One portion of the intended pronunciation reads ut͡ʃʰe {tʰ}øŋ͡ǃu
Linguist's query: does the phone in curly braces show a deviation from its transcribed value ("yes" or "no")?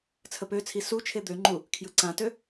yes